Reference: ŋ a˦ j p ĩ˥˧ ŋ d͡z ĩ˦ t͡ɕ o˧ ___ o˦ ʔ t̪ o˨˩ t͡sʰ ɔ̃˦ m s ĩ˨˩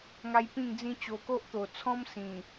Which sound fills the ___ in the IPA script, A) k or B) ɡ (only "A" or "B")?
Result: A